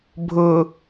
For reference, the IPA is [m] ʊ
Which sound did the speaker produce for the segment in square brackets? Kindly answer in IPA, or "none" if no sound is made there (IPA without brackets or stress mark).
bʱ